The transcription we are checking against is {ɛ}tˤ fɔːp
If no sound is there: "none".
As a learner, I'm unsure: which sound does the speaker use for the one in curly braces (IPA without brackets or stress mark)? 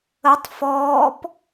ə